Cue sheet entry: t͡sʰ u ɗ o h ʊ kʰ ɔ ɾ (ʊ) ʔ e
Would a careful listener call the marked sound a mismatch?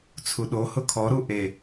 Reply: yes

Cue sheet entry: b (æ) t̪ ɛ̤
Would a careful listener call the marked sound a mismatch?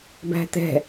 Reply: yes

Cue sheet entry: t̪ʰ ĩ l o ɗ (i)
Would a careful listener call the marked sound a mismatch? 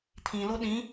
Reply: yes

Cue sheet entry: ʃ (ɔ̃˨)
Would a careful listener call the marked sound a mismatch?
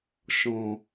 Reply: no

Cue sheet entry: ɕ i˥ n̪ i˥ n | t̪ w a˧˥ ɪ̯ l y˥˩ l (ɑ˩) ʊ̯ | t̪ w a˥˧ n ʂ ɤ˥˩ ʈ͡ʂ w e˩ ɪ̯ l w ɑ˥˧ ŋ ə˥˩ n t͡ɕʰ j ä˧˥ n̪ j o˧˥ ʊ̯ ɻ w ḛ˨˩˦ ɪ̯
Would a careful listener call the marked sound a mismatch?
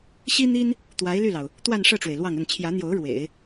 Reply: no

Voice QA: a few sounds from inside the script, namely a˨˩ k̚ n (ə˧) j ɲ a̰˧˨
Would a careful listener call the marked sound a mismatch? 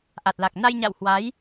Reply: yes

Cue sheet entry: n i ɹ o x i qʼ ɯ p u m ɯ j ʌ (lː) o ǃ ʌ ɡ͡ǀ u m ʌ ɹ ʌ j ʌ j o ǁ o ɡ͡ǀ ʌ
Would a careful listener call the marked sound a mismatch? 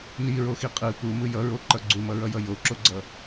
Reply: yes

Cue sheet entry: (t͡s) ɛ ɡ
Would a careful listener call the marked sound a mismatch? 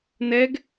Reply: yes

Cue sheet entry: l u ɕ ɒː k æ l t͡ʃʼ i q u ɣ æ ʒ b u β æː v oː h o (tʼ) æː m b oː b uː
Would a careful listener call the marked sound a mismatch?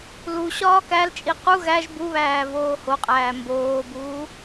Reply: yes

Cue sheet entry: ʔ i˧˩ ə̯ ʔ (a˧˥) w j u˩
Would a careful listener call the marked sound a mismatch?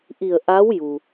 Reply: no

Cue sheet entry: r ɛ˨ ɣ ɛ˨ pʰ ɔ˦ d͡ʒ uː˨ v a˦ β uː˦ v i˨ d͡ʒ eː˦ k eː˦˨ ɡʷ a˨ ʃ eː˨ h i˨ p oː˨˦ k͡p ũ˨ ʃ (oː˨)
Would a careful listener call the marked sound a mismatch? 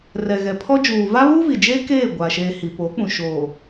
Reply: no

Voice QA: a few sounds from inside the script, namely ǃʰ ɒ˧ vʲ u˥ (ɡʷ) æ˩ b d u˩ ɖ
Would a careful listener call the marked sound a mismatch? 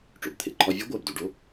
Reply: no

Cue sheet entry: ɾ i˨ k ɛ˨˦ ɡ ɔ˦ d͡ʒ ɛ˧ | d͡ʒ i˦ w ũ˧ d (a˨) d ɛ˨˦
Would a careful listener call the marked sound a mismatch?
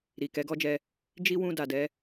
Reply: no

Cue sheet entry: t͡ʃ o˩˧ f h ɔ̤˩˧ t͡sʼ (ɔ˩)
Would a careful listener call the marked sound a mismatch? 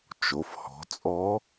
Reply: yes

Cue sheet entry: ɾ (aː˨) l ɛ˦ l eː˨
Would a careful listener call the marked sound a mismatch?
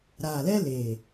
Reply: no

